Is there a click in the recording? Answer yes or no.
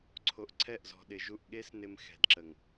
yes